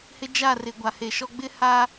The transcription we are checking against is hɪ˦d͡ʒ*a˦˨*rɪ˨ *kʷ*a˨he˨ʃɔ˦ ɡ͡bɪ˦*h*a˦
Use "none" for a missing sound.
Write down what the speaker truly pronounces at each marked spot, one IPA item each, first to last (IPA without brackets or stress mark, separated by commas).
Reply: a˦˨, ɡʷ, h